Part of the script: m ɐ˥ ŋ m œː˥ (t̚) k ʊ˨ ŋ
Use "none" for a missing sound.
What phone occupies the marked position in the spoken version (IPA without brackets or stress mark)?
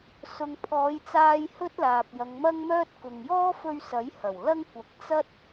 t̚